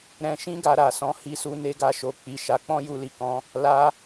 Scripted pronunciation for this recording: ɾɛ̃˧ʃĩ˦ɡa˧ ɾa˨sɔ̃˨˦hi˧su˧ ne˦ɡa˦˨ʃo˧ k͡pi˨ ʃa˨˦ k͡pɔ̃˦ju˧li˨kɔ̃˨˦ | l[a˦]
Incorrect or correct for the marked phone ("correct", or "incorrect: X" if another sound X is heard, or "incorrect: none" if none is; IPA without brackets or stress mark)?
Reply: correct